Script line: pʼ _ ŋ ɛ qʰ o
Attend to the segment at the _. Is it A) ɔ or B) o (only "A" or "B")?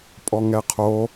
A